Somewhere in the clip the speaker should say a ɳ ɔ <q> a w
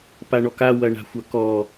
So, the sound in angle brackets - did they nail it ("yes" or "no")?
no